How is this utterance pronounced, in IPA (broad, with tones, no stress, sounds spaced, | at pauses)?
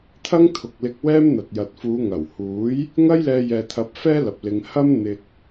t̪ʰ ɐ˥ ŋ t̪ʰ ʊ˨ k̚ l ɪ˧ k̚ w ɛː˥ m n̪ ɐ˨ t̚ j ɐ˨ t̚ f uː˨˧ ŋ ɐ˨˩ w h uː˨˥ j | ŋ ɐ˥ j l ɛː˧ j ɛː˨ t̪ʰ ɐ˨˥ p̚ f ɛː˥ l ɐ˨ p̚ l ɪ˧ ŋ h ɐ˥ m n̪ ɪ˧ k̚